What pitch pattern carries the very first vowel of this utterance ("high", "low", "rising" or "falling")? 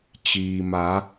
low